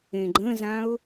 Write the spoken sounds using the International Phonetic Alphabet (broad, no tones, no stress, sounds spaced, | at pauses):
ẽ ɡ͡ǃ ə̃ z ã ʊ̯